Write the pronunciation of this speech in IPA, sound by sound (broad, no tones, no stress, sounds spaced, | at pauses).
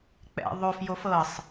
k͡p ɛ̰ ðˤ o f j o f ɤ sˤ